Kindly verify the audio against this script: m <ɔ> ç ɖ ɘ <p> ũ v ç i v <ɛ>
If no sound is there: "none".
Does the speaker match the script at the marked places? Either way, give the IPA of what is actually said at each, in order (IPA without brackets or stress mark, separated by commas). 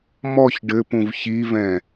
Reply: ɔ, p, ɛ̃